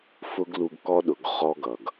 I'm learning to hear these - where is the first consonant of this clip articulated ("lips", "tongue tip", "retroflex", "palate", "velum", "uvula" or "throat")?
lips